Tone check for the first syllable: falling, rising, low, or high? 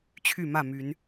falling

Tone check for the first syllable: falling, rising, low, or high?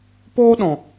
high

